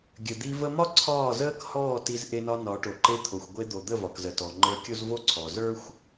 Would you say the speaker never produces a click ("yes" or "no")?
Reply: no